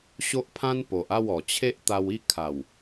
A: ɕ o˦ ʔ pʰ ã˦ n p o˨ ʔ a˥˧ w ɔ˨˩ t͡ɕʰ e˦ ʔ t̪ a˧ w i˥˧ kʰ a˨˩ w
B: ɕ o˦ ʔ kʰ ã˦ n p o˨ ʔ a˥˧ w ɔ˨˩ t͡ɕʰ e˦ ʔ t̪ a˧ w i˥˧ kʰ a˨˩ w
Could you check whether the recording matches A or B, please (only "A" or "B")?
A